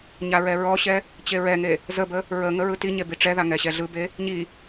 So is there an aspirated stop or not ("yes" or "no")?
no